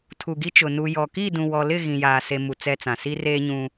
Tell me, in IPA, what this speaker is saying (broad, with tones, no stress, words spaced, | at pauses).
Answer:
tʰu˨ɡi˦t͡ʃʊ˨ nu˨jɔ˨ ki˦˨dũ˨wɔ˨lɪ˦˨ ɣĩ˨jaː˨ se˦mu˨ t͡sɛ˦t͡sã˨ si˦reː˦ɲũ˦